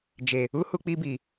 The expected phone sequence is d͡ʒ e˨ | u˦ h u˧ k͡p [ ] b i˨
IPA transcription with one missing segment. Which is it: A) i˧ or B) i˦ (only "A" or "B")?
A